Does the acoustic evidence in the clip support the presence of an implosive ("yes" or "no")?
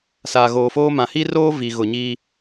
no